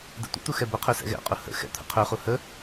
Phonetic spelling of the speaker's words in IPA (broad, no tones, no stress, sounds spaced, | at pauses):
d ɛ̰ tʷ ə̰ t̪ u x ɛ b ə qʰ ø s ɛ̰ ɣ ɛ̰ qʼ u h ə̰ x ɛ̰ t̪ʰ ə̰ qʰ ø χ u h ə